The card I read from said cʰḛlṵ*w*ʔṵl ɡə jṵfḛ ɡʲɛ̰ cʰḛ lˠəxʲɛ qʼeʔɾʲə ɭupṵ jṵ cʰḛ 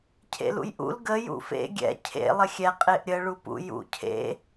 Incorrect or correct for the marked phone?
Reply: incorrect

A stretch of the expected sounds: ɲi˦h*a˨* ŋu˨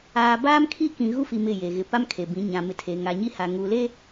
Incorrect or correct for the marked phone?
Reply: correct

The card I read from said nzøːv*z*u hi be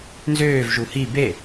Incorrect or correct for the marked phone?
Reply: incorrect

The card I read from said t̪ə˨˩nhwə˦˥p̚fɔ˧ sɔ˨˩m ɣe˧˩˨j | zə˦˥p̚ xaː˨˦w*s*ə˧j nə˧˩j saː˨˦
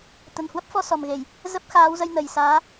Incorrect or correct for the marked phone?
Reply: incorrect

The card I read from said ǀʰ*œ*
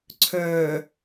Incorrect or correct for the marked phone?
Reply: correct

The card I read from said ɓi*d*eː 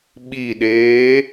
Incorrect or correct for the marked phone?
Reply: incorrect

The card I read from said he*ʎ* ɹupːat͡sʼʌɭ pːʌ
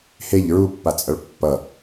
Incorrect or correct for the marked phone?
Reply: correct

